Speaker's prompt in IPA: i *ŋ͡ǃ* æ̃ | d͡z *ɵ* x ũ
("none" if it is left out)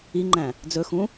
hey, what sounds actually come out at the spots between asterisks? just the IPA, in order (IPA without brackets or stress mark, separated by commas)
ŋ͡ǃ, ɵ